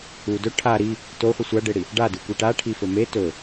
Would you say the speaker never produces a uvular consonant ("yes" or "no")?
no